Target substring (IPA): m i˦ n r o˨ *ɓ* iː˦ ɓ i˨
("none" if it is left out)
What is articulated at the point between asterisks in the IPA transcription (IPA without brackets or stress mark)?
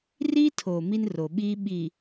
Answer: ɓ